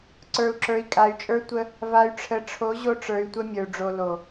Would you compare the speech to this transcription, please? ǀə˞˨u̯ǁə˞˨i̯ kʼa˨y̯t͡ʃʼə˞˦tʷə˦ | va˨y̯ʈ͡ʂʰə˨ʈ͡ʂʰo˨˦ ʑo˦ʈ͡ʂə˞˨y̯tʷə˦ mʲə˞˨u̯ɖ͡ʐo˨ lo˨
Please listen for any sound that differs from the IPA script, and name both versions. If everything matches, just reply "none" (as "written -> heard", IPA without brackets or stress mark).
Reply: none